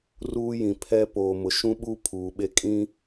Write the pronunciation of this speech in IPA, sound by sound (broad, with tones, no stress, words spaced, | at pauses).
ruː˦jĩ˨ pʰɛ˦ poː˨mʊ˨ʃũ˦ɓu˦ pʰuː˨ɓe˦kʼĩ˦